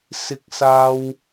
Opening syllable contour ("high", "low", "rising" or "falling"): high